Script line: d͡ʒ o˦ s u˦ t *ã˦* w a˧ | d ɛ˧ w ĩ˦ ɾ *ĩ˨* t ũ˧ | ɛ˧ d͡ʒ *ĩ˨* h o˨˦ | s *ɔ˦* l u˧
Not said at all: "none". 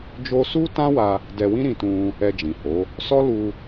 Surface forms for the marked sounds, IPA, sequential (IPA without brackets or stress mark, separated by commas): ã˦, ĩ˧, ĩ˨, ɔ˦